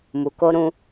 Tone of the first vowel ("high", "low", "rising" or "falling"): low